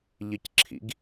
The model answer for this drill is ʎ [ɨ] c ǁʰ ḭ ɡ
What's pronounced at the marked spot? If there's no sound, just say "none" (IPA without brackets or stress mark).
ɨ